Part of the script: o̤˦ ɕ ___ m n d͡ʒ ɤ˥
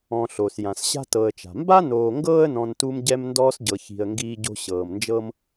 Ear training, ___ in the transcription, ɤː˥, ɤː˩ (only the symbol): ɤː˩